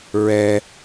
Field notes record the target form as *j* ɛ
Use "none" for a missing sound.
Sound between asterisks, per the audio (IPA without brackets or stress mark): ɹ